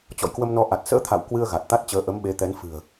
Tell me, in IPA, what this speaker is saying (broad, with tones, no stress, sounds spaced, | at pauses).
t͡ɕ ɔ̰˧˨ j k w ə˧ m n ɔ˧ ʔ a˨˩ t̚ s ə̰ː˧˥ t̪ʰ a̰˧˨ w k w ɨ˧ ə̯ ɣ a˨˩ t̚ t̪ a˦˥ t̚ t͡ɕ əː˨˦ ʔ ə˨˦ m ɓ e˨˦ t̪ ɛ˨˦ n f ɨ̤˨˩ ə̯